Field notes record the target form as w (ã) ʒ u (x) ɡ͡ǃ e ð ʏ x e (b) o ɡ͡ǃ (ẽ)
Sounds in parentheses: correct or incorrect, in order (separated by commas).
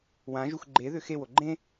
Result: correct, correct, incorrect, correct